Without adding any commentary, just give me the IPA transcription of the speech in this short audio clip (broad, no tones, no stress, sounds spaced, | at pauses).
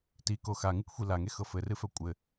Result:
t i k o x a ŋ ɨ k xʷ i l a ŋ e x ɤ f ɘ r ɨ f œ kʷʼ ɘ